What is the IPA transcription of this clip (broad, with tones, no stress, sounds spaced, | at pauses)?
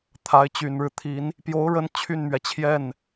t̪ʰ a˧˥ ɪ̯ t͡ɕ y˨˩ n ɻ ɻ̩˦ t̪ʰ i˧˥ n | p j o˧˥ ʊ̯ ɻ ə˧˥ n t͡ɕʰ y˥˩ n m ɥ ɛ˩ t͡ɕʰ j ɛ˥˩ n